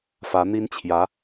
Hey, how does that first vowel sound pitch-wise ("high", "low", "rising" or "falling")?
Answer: rising